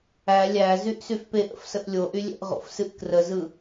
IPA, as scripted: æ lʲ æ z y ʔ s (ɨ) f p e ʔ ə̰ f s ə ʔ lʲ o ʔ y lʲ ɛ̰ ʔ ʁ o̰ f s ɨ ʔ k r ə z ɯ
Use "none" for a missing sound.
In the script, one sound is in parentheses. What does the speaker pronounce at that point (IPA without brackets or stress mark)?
y